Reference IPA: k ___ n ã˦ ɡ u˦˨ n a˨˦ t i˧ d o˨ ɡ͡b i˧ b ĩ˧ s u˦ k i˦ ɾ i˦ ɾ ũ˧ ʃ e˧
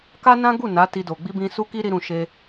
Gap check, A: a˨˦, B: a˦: B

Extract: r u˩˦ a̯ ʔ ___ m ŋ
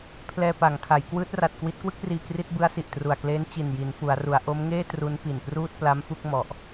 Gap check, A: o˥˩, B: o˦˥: B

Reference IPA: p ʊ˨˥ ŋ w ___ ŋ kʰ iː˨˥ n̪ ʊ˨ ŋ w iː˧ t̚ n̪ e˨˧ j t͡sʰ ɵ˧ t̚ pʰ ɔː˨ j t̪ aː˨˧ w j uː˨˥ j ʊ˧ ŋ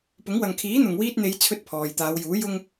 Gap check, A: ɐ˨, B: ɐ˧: A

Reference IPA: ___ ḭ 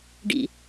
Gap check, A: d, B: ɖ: B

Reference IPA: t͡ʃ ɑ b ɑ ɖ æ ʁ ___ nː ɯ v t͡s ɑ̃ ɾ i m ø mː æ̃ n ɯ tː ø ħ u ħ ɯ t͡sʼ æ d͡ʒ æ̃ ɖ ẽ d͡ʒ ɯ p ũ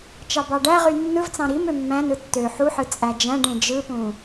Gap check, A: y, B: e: A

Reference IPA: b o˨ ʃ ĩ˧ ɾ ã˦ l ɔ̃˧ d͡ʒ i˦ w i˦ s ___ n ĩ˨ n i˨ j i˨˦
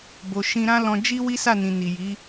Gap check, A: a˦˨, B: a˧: A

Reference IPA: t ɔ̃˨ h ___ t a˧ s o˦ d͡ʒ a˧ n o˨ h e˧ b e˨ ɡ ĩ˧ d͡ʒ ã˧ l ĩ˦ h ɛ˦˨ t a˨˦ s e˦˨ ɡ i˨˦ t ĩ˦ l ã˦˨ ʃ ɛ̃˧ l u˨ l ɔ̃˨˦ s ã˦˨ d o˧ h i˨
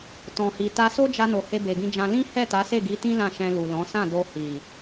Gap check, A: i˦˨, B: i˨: B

